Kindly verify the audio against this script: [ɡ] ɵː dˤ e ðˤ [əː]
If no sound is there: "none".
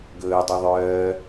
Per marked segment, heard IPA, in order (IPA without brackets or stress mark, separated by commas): ɡ, œː